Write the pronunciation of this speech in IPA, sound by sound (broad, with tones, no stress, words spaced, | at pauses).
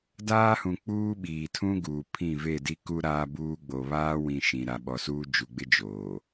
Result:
daː˦hũ˨ k͡puː˦ɓiː˨tʰũ˦ɡuː˨ pʰĩ˦˨ve˦˨ di˦ku˦ ɾaː˦buː˦ɡ͡bo˨ βaː˦wĩ˨ ʃĩ˨ ɾa˨ɓɔ˨suː˦ d͡ʒu˨ɡ͡bɪ˦ d͡ʒoː˨